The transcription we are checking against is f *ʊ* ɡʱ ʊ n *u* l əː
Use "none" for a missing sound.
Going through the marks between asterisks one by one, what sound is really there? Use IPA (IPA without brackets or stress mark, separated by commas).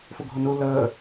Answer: ʊ, u